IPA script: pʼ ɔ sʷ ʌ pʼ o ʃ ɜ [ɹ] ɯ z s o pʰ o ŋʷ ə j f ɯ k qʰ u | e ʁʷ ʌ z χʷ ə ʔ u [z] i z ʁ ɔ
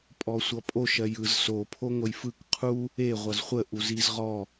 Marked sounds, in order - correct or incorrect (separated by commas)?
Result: incorrect, correct